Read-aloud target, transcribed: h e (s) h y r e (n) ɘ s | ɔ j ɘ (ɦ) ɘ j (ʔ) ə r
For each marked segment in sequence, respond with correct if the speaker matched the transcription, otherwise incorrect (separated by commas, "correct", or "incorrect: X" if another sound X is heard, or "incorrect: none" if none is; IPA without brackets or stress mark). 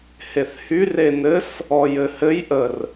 incorrect: θ, correct, incorrect: h, correct